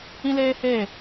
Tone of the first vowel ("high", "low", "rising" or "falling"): high